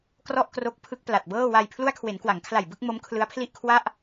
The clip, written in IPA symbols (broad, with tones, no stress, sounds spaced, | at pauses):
k r ɔ˥˩ ʔ k r o˦˥ k̚ pʰ ɯ˦˥ k̚ p l a˨˩ t̚ b ɤː˥˩ w a˧ j pʰ l u˦˥ a̯ kʰ w e˩˦ n k w a˩˦ ŋ kʰ l a˨˩ j b ɯ˥˩ k̚ m o˦˥ m kʰ l ɯ˦˥ a̯ pʰ l i˥˩ ʔ kʰ w a˥˩ ʔ